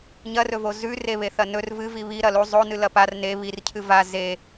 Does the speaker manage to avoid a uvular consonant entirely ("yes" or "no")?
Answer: yes